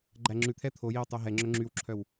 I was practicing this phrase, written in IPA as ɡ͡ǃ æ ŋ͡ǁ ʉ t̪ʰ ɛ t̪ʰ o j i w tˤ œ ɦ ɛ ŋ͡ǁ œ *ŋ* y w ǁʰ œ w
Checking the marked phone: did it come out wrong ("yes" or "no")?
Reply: yes